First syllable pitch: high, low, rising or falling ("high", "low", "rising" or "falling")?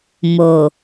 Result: low